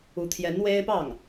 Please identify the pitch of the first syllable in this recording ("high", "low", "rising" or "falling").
rising